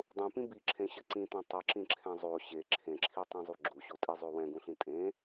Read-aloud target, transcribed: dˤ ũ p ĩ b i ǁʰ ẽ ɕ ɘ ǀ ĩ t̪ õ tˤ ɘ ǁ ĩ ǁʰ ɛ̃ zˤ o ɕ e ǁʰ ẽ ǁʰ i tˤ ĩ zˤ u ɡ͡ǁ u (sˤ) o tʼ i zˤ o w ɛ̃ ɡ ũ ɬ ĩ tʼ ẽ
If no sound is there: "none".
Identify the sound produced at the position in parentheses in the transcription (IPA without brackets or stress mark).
ɕ